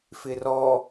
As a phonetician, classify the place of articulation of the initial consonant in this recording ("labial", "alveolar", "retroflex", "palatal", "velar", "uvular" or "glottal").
labial